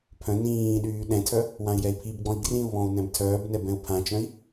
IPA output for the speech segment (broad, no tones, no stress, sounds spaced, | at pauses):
pʰ œ̃ n ĩː ɗ yː ɗ ɛ̃ tʰ œ | w ã i̯ j ɛ i̯ pʰ i b ɡ͡b ɔ̃ i̯ ɡ r ĩ u̯ β ɔ̃ u̯ n ɛ̃ b tʰ œː b n ɛ b ɛ̃ u̯ pʰ ã t͡ʃ œ̃ i̯